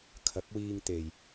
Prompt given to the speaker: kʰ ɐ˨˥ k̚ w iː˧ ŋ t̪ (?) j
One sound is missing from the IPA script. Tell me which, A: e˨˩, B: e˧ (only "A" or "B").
A